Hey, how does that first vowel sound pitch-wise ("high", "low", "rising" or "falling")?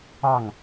falling